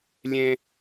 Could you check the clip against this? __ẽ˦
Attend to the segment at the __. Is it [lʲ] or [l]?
lʲ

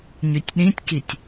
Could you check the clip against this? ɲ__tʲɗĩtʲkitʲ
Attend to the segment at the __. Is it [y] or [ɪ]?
y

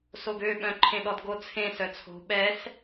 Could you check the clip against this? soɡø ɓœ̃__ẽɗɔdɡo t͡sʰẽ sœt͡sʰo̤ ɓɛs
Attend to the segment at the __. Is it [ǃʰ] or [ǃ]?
ǃʰ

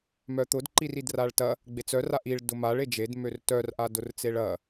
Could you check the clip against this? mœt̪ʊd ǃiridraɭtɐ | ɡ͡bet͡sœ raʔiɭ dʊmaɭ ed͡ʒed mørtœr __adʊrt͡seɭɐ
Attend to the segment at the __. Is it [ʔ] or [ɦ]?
ʔ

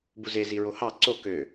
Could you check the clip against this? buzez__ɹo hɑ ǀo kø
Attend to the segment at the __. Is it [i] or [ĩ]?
i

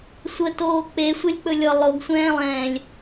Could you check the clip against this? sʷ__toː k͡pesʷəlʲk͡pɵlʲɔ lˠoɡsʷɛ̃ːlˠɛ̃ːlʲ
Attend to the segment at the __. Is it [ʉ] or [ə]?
ə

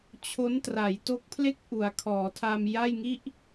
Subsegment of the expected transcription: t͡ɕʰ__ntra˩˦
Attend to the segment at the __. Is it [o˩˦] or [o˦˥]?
o˦˥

